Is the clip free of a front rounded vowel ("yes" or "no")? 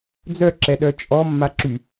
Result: no